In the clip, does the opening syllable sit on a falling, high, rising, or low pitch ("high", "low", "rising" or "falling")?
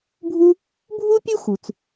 high